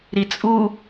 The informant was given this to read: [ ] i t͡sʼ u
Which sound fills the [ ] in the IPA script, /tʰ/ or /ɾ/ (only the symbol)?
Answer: ɾ